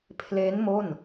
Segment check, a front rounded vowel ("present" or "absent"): absent